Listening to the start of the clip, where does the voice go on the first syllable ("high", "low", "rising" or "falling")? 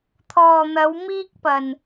low